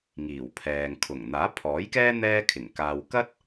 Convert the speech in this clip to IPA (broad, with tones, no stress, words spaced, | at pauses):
ŋiː˨˩wpʰɛː˨ŋ kʰʊ˨˩ŋ n̪aː˨˥pʰɔː˨˥jkɛː˥ n̪ɛː˥kʰɪ˨˩ŋ kaː˨wkɐ˥t̚